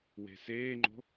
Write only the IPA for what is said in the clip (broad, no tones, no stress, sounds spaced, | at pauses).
w e̤ s eː ŋ͡ǃ o̤